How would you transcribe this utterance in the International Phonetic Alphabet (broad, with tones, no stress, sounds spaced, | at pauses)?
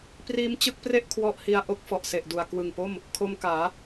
p r iː˦˥ m t͡ɕ ɯ˦˥ k̚ p r e˥˩ ʔ kʰ w ɔ˦˥ ʔ h i˧ a̯ ʔ o˦˥ k̚ f ɔ˨˩ ʔ s e˨˩ ʔ d u˨˩ a̯ k w ɯ˨˩ ŋ p o˥˩ m | kʰ o˧ m k aː˩˦